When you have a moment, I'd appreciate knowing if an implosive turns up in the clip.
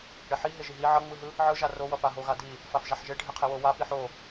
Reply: no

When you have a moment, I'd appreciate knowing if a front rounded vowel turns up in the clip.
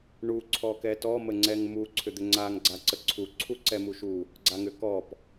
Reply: yes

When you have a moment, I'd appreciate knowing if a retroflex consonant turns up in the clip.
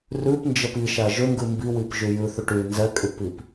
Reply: yes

